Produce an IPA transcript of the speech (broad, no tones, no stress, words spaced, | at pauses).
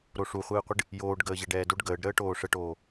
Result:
ɾoʂuχʷɨːqʷɨɖ | joːɖ ɡəːʑɛɖɛːdoɖ ɡəːɖɾəːʈoː ʂəʈoː